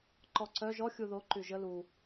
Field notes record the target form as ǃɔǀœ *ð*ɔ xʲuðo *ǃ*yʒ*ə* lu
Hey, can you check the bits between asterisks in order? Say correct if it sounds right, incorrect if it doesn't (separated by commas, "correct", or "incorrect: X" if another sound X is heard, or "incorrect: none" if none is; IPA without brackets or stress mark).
incorrect: ʒ, correct, correct